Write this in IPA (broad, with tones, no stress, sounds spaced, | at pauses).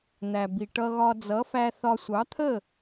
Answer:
n̪ æ˩ b i˩ ʈ ʌ˧ ɣ ɒ˧ d͡z ʌ˩˥ f æ˧ θ ɒ˧ sʷ ɑ˩˥ t̪ʰ ə˥˩